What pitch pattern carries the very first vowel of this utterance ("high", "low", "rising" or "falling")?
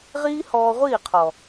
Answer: high